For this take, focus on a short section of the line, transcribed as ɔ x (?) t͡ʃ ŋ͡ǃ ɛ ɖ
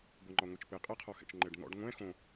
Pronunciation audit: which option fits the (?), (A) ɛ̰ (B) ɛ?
A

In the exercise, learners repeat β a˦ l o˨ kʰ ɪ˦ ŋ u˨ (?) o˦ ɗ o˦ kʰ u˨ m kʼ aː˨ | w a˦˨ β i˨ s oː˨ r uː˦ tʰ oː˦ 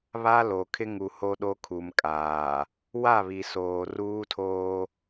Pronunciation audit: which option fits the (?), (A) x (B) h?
B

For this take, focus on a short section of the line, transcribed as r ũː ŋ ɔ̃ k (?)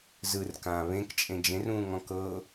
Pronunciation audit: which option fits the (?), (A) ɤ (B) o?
A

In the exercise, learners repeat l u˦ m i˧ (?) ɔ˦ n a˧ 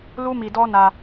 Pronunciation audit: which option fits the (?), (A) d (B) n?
A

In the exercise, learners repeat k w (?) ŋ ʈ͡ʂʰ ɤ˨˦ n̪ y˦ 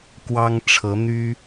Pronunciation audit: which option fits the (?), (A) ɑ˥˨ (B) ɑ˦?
B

